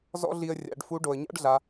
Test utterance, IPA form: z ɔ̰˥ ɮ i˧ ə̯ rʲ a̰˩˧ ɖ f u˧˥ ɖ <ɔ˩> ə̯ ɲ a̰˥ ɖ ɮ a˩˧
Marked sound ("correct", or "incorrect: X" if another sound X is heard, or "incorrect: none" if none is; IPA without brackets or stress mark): incorrect: o˩